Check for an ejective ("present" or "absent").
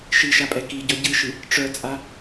present